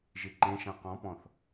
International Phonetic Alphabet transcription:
ʒiǃẽʃã qɔ̃pɔ̃θ

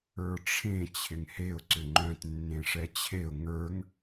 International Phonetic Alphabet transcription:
ə˞ʈ͡ʂʰẽ t͡ɕʰɪŋheʊ̯ ǀʏŋ͡ǃœ̃t nːẽʂɛt͡ɕʰeʊ̯ ŋə˞ŋ

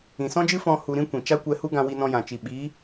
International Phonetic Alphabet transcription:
ĩ˨sɔ̃˦d͡ʒɨ˦ fɔ̃˦ hu˧ɾĩ˦ kʷĩ˨ t͡ʃa˦kʷɛ˧hu˦ ɡã˧wi˧nɔ̃˧jã˨ t͡ʃi˨ ɓiː˨˦

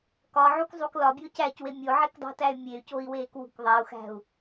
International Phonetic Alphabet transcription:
kɒʕukzˤuk lɒbʲo cæcwe mʲoʕekdˤṳtæy̯ mʲey̯coi̯weːkwṳk ðˤæu̯xæ̤u̯

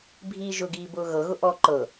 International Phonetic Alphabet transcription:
bʱiːʒʊɡiː bʊːɣɤɣʊ ʔɔ ǃɤ

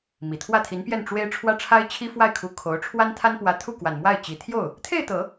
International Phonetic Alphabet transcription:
mi˨˩t̪ʰwä˥˩t̪ʰi˧˥npjɛ˥˩n ʈ͡ʂwe˥ɪ̯ ʈ͡ʂʰwä˥ʈ͡ʂʰa˥ɪ̯t͡ɕʰi˥ fwa˥˩ɪ̯kʰu˧˥ kʰo˧˥ʊ̯ ʈ͡ʂʰwa˥nt̪ʰa˥npwä˧˥t̪ʰu˥˩ kwa˨˩nmwa˥˩ɪ̯t͡ɕi˨˩ t̪ʰjo˥˩ʊ̯ | t̪ʰe˥˩ɪ̯t̪ɤ˨˩˦

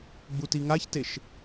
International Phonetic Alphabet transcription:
ɡ͡butiŋaçteʃ

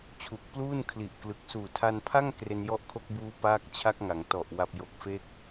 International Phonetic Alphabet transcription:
t͡ɕʰu˨˩k̚pluː˥˩nkʰli˨˩ʔklɯ˨˩k̚ suː˨˩tʰa˧npʰa˥˩ŋ kre˧njɔ˦˥ʔkʰo˦˥k̚buː˦˥ paː˦˥k̚t͡ɕʰa˦˥k̚ŋa˩˦ŋtɔ˨˩ʔ wa˨˩p̚jo˨˩k̚fe˦˥k̚

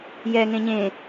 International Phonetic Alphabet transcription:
jɛ ŋẽɲẽ

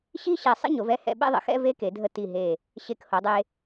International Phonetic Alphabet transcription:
ɕi˥ɕɛ˧˩ sˤə̰˥ ɲo˩˧vɛ˥˧hɛ̰˧˩ ɓɛ̰˥˧ðˤə̰˩˧xɛ̰˥˧ ve˥ ke˩˧dʱə˧ ti˧˩ɦe˧˩ | ɕe˧˩kho˩˧dˤe˧

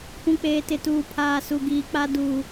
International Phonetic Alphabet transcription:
pũ˨k͡peː˨tɪ˨tuː˨ pʰaː˨su˨ɡiː˨k͡pa˦ duː˦

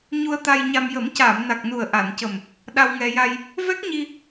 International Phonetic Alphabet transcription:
ɲu˧ə̯t̪a˧jɲa˧m jə˨˩˦mcaː˨˩˨mna˨˩k̚nu˨˩ə̯ ʔa˨˩˨ncə˨˩m | ɗa˧wŋɛ˧ ja˧j | vɛ˦˥k̚ɲi˧

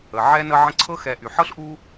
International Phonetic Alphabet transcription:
ə˩ʕɛ˦ nə˦ ʕə̃˦ǀʰɤ˥xɛ˨ ʔy˩ħɤ˥ɬʔu˦

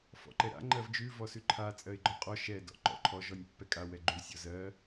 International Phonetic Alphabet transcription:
fɔ̰ǃɛɾa̰ ŋ͡ǃɜvd͡ʒʉ vɔsʉǃʰa t͡sʼɜɪ̯ɡ͡ǃɔqʼɔ ʃɛ dɔ̰ǃɔ̰ǃʰɔ ʒɔnʲpːɛkʼa wɛɡ͡ǃʉ sʲɔzɜ

